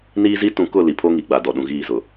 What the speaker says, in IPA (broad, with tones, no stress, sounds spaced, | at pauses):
n iː˦ z i˦ t ũ˨ k ʊ˦˨ l i˨ pʰ o˦ ŋ i˨ ɡ͡b a˨ d ɔ˨ ɗ ũ˨ ɣ iː˦˨ z ʊ˨